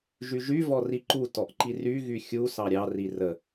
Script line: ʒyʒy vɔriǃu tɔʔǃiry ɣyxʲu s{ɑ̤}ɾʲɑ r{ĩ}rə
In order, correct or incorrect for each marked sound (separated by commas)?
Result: incorrect, incorrect